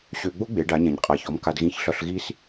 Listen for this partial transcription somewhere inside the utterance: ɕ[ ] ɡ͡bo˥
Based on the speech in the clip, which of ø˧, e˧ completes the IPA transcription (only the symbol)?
ø˧